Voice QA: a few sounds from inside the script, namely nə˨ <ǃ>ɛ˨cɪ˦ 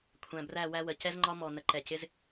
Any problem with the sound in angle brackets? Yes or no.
no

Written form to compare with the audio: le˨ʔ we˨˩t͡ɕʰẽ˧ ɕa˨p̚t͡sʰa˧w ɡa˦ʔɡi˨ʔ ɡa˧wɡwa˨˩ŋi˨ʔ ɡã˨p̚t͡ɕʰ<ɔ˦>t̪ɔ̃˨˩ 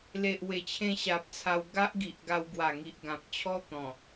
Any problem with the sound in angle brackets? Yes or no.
no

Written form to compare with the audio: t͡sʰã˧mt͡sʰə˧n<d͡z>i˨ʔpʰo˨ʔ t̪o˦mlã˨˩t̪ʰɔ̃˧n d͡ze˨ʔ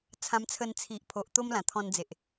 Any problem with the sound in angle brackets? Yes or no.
yes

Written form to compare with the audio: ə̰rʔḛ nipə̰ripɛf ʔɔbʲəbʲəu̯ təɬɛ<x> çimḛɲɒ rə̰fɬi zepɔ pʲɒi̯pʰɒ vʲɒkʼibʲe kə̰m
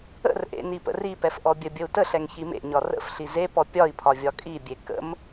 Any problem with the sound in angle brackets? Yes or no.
yes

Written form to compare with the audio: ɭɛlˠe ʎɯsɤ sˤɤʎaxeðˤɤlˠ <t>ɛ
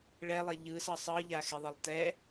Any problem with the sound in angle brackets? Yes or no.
no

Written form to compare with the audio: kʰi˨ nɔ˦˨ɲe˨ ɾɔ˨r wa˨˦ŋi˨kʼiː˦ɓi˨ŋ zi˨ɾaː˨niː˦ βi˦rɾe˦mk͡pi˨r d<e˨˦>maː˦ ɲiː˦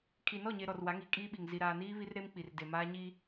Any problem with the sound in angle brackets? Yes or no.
yes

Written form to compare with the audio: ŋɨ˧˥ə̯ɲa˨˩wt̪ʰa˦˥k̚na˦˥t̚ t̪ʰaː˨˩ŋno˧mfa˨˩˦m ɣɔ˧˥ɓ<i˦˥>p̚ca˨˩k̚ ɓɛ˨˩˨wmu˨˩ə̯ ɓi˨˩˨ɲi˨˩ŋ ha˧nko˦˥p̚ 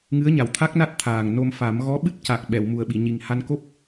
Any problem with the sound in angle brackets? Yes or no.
yes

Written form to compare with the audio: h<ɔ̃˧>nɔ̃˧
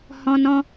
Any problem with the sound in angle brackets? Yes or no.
no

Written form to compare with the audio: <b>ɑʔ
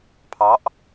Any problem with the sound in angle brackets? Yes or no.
yes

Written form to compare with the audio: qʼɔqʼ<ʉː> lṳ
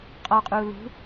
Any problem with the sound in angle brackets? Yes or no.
yes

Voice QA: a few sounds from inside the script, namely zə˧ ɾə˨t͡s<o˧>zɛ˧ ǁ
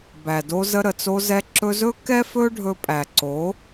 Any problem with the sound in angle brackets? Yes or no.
no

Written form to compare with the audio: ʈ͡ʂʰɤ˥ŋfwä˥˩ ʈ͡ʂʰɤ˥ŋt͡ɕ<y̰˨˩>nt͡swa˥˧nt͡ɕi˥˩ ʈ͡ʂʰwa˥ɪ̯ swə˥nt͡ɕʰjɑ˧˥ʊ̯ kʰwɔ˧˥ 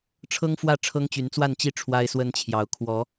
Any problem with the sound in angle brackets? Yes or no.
yes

